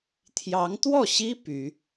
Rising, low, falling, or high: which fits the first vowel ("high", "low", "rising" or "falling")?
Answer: rising